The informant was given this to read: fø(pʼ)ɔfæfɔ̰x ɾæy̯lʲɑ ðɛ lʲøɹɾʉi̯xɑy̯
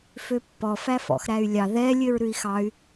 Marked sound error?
yes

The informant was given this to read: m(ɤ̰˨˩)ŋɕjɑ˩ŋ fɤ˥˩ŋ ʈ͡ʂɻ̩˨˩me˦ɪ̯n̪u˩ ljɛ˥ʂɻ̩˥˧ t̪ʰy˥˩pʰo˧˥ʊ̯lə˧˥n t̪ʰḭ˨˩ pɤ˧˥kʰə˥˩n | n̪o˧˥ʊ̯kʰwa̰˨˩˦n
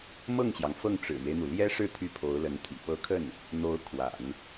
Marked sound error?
yes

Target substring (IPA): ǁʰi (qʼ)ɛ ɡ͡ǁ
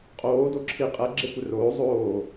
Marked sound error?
no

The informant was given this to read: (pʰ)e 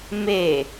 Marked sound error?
yes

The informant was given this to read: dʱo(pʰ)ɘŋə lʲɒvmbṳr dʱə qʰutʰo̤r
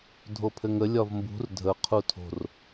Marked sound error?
no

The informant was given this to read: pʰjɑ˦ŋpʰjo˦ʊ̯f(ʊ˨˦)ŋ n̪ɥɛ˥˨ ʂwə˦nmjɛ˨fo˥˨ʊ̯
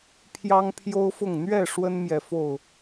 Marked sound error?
yes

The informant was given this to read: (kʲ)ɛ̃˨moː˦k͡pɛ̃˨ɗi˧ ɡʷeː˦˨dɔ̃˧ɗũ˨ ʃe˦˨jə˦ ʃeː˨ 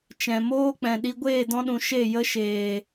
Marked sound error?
yes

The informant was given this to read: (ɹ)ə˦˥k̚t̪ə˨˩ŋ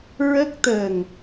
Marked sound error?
no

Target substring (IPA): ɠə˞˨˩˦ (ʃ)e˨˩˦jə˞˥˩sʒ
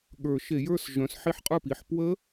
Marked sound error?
no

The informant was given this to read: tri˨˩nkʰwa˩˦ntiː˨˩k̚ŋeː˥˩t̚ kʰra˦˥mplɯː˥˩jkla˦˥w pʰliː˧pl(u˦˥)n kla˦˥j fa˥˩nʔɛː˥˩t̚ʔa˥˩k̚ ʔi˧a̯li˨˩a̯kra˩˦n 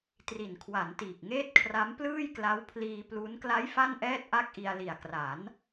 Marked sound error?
no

